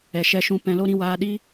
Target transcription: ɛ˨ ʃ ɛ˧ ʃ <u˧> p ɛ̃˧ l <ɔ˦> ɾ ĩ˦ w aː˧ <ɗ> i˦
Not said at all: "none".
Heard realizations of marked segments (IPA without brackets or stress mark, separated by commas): ũ˧, o˦, ɗ